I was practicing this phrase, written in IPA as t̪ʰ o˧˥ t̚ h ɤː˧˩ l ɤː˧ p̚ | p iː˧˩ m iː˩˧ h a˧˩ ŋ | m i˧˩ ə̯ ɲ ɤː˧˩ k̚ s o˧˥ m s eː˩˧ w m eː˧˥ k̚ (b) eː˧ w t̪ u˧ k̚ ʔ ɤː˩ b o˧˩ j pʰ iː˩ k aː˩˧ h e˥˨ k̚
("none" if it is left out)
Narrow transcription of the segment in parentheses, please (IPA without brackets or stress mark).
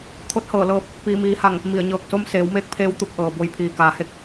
pʰ